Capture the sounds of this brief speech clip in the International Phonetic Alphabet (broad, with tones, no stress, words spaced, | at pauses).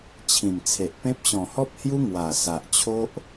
t͡ɕʰĩ˨˩mt͡sʰe˨ʔpẽ˦p̚ ɕɔ̃˨˩hɔ˦p̚hju˦ ŋwa˨˩sa˨ʔt͡ɕʰo˦ʔ